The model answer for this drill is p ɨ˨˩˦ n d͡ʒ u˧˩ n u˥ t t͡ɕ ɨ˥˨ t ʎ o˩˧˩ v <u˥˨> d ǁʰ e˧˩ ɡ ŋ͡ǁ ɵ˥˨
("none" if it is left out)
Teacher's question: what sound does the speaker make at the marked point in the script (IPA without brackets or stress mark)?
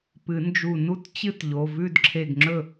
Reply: ʉ˥˨